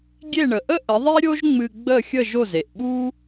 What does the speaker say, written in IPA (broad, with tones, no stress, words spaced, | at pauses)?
ɡʲe˥˩ɳə˩ʔə˥ ʔə˩˥ðˤe˥ ɾʲo˥ʒŋ͡mɨ˧ ɡ͡bə˥˩xʲə˥˩ ʒo˥˩ze˩ʔɓu˥